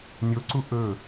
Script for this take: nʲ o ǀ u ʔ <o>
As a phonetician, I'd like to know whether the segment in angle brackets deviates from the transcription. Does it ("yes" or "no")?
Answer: yes